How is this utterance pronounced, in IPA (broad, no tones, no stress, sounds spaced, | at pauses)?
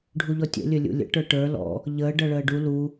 ɖʱ u ʎ ɔ tʲ ə̰ lʲ ɵ lʲ ṵ lʲ ə̰ ʈ ə˞ ʈ ə˞ l ɔ̰ | ʎ əː ɖ ʌ ɭ əː ɖ u l u